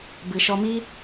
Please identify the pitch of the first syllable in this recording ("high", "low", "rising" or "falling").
low